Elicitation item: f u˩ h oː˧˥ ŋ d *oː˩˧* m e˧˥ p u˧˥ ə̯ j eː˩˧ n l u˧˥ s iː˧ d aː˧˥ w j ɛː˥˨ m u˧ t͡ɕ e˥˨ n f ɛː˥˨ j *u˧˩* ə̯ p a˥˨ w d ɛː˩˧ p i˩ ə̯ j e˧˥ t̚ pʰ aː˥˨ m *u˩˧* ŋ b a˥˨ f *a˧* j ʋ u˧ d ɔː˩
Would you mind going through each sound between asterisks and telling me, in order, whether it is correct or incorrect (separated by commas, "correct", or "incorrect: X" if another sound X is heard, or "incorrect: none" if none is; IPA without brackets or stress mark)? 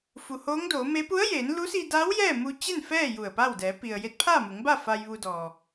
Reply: correct, correct, correct, correct